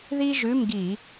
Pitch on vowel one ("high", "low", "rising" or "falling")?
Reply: high